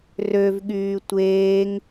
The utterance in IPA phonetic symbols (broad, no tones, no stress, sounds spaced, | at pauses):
r ø v ɠ yː tʷ eː ŋ